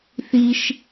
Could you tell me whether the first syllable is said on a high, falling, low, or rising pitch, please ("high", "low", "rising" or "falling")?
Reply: high